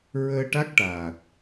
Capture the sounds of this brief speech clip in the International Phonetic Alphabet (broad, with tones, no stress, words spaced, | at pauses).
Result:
ɹəː˧ʈa˦˥k̚ʈaː˨˩t̚